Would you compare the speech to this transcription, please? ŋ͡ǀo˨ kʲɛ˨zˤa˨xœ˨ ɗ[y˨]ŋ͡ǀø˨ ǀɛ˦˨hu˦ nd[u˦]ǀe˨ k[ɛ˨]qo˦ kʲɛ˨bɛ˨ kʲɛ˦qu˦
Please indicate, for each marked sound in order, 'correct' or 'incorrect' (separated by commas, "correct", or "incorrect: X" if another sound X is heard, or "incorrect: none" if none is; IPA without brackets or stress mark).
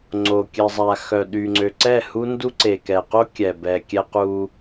correct, correct, correct